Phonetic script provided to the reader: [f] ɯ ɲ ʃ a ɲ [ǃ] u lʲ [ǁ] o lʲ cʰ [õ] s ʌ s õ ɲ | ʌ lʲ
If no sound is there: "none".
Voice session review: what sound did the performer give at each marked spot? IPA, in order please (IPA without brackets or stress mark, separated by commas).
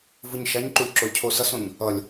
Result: v, ǃ, ǁ, o